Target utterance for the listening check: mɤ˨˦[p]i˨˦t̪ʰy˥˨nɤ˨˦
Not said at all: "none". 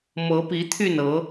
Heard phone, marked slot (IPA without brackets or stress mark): p